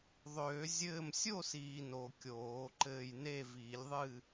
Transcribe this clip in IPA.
ðˤ øː˨˩˦ zʲ ɘː˥˨ m sʲ o˥˨ s iː˨ n o˨ kʲ oː˨˩˦ ǃ ɘː˥˨ j n e˥˨ v iː˨˩˦ lʲ ðˤ ɨː˥˨

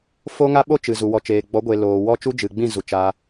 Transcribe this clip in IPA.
f o˦ ŋ a˦ ɓ o˦ t͡ʃ ɨ˨ z u˨ w ɔ˨ t͡ʃ eː˨ ɡ͡b ɔ˨˦ ɡʷ e˨ l oː˨ w ɔ˦ t͡ʃ u˦ d͡ʒ ɨ˨ ɡ͡b ĩ˦˨ z u˨ t͡ʃ a˧

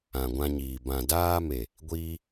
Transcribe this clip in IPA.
ã˨ ɡʷ ã˧ ɲ iː˨ b ã˨ d aː˧ m e˨ | ɡʷ iː˦

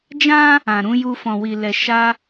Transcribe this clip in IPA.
d͡ʒ ã˦ | ã˨ ɾ ũ˨˦ j u˧ f ɔ̃˨ w i˨ l ɛ˨ ʃ a˧

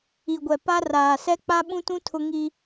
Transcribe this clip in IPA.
i˨ ɡʷ ɛ˨ p a˦ r aː˨ s ɛ˦ k͡p a˦ ɓ ũ˦ t ũ˦ tʰ ʊ˦ ŋ i˦

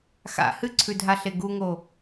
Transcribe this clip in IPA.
x a̰ h ɨ ǀʰ ʉ dʱ a ɬ e ɡ u ŋ o

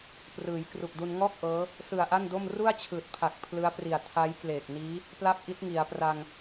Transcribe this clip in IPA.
p r ɯː˩˦ j k r u˨˩ k̚ d u˧ n ŋ ɔː˥˩ k̚ ʔ ɤː˦˥ | s ɯ˨˩ a̯ ʔ a˥˩ n d o˥˩ m r u˥˩ a̯ t͡ɕʰ ɯː˨˩ t̚ pʰ a˨˩ k̚ pʰ l ɯ˦˥ a̯ p r i˨˩ a̯ tʰ a˦˥ j k l eː˨˩ k̚ n iː˦˥ | p l a˥˩ p̚ ʔ i˦˥ t̚ ŋ i˩˦ a̯ p r a˧ ŋ

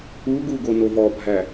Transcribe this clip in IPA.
u ɡ u ɡ o n o v ɔ bʱ æ

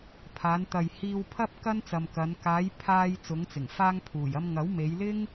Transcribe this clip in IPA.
pʰ aː˨˧ n t̪ ɐ˨ j h iː˧ w pʰ ɐ˥ p̚ k ɐ˥ n t͡s ɐ˨ m k ɐ˨˧ n k aː˨˧ j pʰ aː˧ j t͡s ʊ˨˧ ŋ t͡s ɪ˨˩ ŋ f aː˧ ŋ pʰ uː˨˩ j ɐ˧ m ŋ ɐ˨˥ w m e˨˧ j l ɪ˥ ŋ

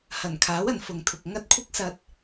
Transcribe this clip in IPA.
h ɐ˨˩ n kʰ aː˨˥ w ɐ˨˩ n f ʊ˨ ŋ t̪ʰ ʊ˨ k̚ ŋ ɐ˥ t̚ kʷʰ ɪ˥ k̚ s ɐ˧ t̚

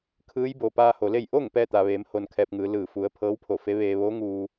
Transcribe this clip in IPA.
kʰ ɯː˧˥ j b o˩ p aː˧ h o˩ l e˥˨ j ʔ o˥˨ ŋ p ɛː˥˨ t̪ a˩ ʋ eː˩˧ m h o˧ n kʰ ɛː˧ p̚ ŋ ɯː˩˧ l ɯː˧˩ f u˩˧ ə̯ pʰ ɤː˧˥ w pʰ o˧˩ f e˧˥ ʋ eː˧ ʋ oː˧˥ ŋ uː˧

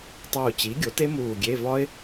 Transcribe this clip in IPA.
tˤ uː˧˩ t͡ɕ i˩˥ ɡʲ o˩˥ t e˦˥ m uː˧˩ ɡʲ e˧˥˧ v ɒ˦˥ ɪ̯

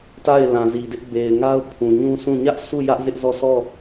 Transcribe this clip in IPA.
t a˦˨ ɪ̯ l ã˨ z i˨ d ɪ˦ ʔ b e˨ ɪ̯ ŋ a˦ ʊ̯ pʰ ũ˨ ɲ ũ˦ s ũ˦˨ ɲ ä˦ ʔ s u˦˨ j ä˦ ʔ z ɪ˦ ʔ z ɔ˦˨ s ɔ˦˨

